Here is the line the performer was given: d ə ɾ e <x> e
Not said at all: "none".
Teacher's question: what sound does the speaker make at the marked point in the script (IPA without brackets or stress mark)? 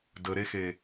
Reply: x